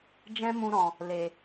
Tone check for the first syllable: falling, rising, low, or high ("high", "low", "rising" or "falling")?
high